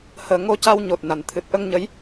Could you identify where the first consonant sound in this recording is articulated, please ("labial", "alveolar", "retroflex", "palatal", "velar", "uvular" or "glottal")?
glottal